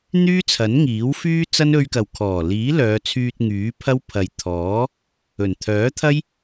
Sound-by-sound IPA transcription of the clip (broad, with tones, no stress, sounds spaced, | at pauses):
n̪ yː˥ t͡sʰ ɐ˨˥ n ŋ iː˨˥ w f yː˥ t͡s ɐ˥ n ɵ˥ ɥ k ɐ˨ w kʰ ɔː˨˩ l iː˨˥ l œː˨˧ t͡sʰ yː˧ t̚ ŋ yː˨˥ pʰ ɐ˥ w pʰ ɐ˨ j t̪ʰ ɔː˨˥ | ɵ˨˩ n t̪ʰ œː˨˥ t̪ʰ ɐ˥ j